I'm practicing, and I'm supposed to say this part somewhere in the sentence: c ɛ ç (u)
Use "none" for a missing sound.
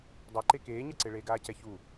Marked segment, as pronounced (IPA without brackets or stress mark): u